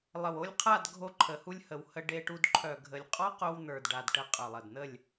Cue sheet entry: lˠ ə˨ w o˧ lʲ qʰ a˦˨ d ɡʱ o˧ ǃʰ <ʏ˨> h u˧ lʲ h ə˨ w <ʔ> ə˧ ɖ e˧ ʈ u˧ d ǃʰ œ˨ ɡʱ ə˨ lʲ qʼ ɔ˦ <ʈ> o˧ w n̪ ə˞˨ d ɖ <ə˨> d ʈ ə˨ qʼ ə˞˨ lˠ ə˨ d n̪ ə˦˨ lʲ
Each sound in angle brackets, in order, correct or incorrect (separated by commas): incorrect, incorrect, incorrect, incorrect